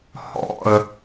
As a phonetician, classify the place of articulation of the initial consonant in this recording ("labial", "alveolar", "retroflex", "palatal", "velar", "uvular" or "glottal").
glottal